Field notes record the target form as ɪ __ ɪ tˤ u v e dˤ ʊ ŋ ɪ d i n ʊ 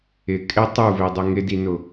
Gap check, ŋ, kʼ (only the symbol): kʼ